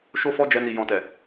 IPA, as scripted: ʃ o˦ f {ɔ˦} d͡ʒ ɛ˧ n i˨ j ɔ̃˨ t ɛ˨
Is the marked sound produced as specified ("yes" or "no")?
yes